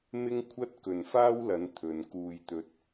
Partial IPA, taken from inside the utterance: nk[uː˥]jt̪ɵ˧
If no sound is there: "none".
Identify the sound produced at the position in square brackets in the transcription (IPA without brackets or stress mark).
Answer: uː˧